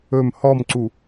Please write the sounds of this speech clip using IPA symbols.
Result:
ɵ m h ɔ m ǀ u

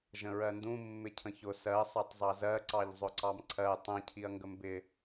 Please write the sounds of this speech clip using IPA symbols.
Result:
ʒ ə̃ ɹ ɜ n d ũ mː ɪ cʰ ə̃ ç ʊ s ɜ sˤ æ tˤ zˤ ɑ z ɜ ǀ ɑ ʎ zˤ ʊ ǀ ɑ m ǀʰ ɜ tˤ ə̃ cʰ i ɐ̯ ŋ ɡ ə m b ɪ

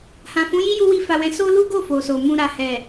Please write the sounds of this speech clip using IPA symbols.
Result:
h ã˨ f ũ˨˦ j i˦ j u˦ w i˦ f a˧ w ɛ̃˧ s o˦ l u˦ ɡ o˦˨ f o˨ s o˨ m ũ˧ ɾ a˨ h ɛ˨

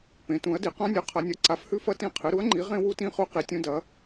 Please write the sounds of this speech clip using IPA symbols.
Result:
p ẽ˩˥ t ũ˩˥ ɐ̯ d i˩˥ q ã˦˥ nʲ ʉ˩˥ qʰ ɐ˩˥ nʲ ɐ˩˥ ǀ a˩˥ f h ʉ˦˥ f ɐ˦˥ t ĩ˦˥ qʰ ɨ˩˥ ɾ u˩˥ ɐ̯ ŋ͡ǃ i˩˥ ʁ ẽ˦˥ w u˦˥ t ĩ˦˥ χ u˦˥ q i˩˥ tʲ ũ˦˥ d ɐ˩˥

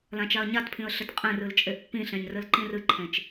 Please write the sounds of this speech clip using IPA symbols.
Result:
l ã t͡ʃ a ə̯ ɲ a t pʰ ĩ ə̯ ɬ ɘ t qʼ ẽ r ɨ l t͡ʃʼ e ʔ pː ĩ ɬ ẽ ɲ r ɘ l ǃ ĩ r ɨ ǃʰ ẽ t͡ʃ

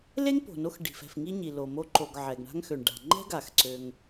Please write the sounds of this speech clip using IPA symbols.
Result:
l e˥ ŋ p o̤˩ n o˧ x ɖ i̤˩ f ɛ̤˩ f ŋ i˥ ɲ i˩ l o˩ m o˧ ǃ o˩ ɡ ʕ ɛ˩ ɡ ɳ a̤˥ ŋ x ø˩ ɳ ɖ a̤˩ ŋ͡ǃ ɛ̤˥ ɡ a˩ x ǀ ø˩ ŋ

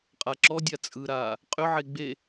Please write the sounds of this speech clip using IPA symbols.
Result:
qʼ a ǁ ɔ dʲ a t͡sʼ ɯ ɾ aː | qʼ ʏ ʕ e ɡ͡b e

